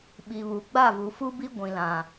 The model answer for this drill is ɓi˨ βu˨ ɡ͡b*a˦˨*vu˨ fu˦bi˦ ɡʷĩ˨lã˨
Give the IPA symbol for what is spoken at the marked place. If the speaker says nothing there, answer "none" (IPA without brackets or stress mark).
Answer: a˦˨